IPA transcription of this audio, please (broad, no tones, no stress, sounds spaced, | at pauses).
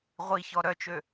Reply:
ʁʷ i ç ɔ ɾ œ t͡ʃ ø